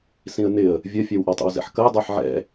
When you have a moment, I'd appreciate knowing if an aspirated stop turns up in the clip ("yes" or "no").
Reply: no